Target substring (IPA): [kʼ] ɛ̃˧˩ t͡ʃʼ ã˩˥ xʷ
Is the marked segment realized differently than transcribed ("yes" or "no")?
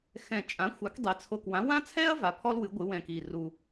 yes